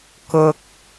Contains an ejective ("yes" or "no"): no